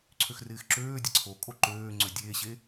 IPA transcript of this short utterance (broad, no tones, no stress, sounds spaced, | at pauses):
ǀʰ ø x r ɪː x ǁ øː dʲ ɐ ǀʰ o kʼ o ǃ øː ŋ͡ǀ ø dʲ eː ɕ e